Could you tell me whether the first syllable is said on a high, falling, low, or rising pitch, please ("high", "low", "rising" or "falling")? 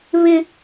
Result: high